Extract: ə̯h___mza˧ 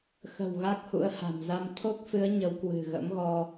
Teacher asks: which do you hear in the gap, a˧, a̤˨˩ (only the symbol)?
a̤˨˩